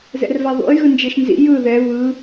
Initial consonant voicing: voiced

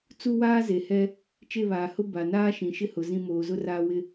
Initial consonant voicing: voiceless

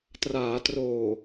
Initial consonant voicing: voiceless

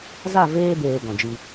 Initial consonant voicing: voiced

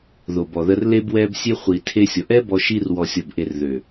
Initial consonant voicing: voiced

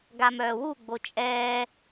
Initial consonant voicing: voiced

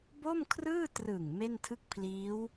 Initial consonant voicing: voiced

